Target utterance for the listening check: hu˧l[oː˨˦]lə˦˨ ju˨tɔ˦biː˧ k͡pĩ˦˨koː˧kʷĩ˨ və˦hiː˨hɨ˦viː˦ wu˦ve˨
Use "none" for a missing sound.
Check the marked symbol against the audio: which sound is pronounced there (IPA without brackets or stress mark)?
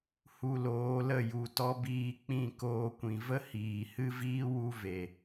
oː˨˦